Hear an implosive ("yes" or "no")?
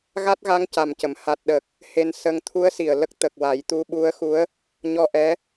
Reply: yes